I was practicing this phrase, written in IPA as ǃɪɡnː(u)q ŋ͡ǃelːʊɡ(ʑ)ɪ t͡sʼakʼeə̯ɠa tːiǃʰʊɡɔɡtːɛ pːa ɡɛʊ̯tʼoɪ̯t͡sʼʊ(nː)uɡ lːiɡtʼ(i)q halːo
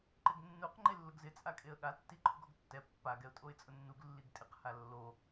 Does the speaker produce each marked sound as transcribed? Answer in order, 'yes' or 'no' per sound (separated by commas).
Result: yes, no, yes, no